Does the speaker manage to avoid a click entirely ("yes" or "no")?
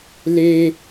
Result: yes